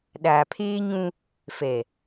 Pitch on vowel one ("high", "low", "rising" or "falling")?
low